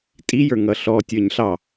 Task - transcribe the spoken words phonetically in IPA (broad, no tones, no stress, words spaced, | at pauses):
tʼijə˞ ŋʌɬɔ tʲə˞ɲɬɑ